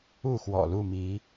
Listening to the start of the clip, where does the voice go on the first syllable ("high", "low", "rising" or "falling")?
falling